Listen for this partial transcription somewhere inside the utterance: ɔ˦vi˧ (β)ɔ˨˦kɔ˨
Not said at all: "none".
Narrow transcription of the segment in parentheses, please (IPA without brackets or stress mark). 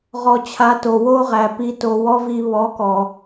β